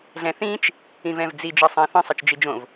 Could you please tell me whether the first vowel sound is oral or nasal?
nasal